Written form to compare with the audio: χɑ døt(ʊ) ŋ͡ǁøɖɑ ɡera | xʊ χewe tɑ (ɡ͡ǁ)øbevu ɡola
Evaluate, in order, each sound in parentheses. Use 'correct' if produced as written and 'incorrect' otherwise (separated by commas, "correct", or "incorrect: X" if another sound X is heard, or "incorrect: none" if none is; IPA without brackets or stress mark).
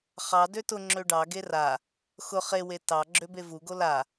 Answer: correct, correct